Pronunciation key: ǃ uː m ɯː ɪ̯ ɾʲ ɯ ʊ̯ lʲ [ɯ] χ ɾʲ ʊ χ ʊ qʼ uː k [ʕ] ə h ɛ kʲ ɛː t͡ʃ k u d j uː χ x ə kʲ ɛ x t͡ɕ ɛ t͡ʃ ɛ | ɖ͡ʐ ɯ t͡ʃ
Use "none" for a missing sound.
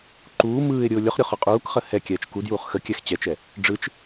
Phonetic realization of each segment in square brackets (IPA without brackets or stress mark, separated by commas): ʊ, χ